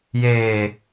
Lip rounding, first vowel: unrounded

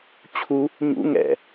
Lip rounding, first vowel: rounded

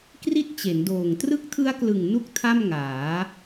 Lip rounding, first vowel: unrounded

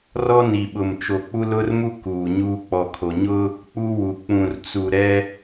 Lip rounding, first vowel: rounded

